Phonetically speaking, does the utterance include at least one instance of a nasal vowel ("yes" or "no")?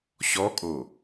no